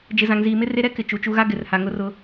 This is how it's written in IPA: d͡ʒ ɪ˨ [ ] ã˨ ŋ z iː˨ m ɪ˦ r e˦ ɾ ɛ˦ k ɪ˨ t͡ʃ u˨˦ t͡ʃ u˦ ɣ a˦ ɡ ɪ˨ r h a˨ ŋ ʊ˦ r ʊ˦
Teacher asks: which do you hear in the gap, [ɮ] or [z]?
z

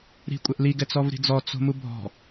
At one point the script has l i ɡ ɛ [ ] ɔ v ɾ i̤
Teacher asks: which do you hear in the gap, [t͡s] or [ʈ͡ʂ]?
t͡s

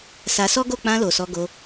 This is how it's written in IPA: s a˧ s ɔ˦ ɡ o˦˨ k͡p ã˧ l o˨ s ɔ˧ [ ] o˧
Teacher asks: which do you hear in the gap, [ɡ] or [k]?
ɡ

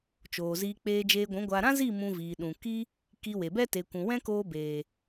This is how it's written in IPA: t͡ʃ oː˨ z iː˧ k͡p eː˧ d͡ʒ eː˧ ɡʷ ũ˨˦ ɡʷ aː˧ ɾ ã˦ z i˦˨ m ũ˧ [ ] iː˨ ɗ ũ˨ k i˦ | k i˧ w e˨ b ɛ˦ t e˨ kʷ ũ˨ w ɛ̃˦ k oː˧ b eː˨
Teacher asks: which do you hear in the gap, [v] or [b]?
v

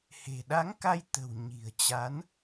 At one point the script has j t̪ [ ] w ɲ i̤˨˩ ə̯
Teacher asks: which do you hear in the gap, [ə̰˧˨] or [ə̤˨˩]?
ə̤˨˩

